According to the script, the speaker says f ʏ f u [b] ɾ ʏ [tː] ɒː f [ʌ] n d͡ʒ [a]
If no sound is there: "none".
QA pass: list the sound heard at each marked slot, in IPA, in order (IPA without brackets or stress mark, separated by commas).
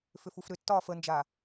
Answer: f, tː, ə, a